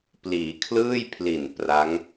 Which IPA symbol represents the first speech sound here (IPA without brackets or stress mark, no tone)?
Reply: p